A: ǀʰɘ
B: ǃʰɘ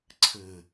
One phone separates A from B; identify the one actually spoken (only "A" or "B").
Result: A